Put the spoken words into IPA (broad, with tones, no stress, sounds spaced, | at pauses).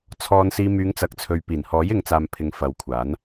t͡sʰ ɔː˨ n s iː˨ m yː˨˧ ŋ t͡s ɐ˨˥ k̚ t͡sʰ ɵ˨ ɥ p iː˨˩ n h ɔː˨˥ j ɪ˨˧ ŋ t͡s aː˨ m pʰ ɪ˨˧ ŋ f ɐ˨˧ w kʷʰ aː˨˥ n